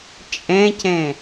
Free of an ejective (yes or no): no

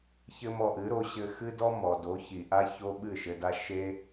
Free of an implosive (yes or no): no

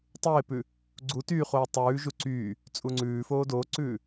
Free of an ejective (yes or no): no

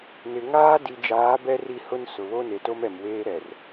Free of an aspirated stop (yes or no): yes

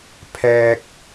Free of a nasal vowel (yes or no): yes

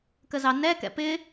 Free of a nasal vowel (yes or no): yes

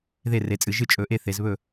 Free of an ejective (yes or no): no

